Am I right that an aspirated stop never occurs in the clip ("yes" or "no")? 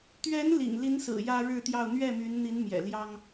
yes